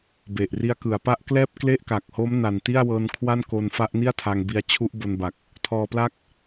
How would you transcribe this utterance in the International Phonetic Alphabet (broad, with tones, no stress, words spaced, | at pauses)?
be˨˩ʔri˦˥a̯ kɯ˩˦a̯pa˦˥ʔklɛː˥˩p̚ kle˥˩ʔka˨˩k̚ho˦˥m na˨˩n ti˥˩a̯wɤː˧nkʰwa˥˩nko˧n fa˦˥ʔni˥˩a̯tʰa˧ŋbi˧a̯ t͡ɕʰu˦˥ʔbo˧nba˨˩k̚ | tʰɔː˧pla˥˩k̚